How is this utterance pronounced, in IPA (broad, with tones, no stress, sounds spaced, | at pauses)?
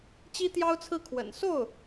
t͡ɕ i˥ t̪ j ɑ˥ ʊ̯ t͡sʰ ɹ̩˥˩ kʰ w ə̰˨˩ n s o˥˩ ʊ̯